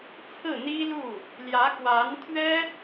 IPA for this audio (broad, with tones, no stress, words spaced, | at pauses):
t͡sʰɹ̩˥˩n̪i˥lu˥˩ | ljä˧˥kwa˧˥n t̪ʰɥɛ˥